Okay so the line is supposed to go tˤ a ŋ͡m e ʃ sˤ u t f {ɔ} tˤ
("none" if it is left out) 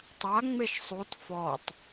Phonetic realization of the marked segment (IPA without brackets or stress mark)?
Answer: ɔ